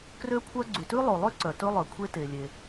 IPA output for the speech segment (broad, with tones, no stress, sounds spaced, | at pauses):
k r ø˥ kʷʰ œ˥ ɡ͡ǀ y˩ t ʉ˥ lˠ o˩ lˠ ø˥ ǀ œ˩ t ɵ˥ lˠ œ˩ kʷʰ e˥ t e˩ lʲ e˩